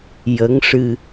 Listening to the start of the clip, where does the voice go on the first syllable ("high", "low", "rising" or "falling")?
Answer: rising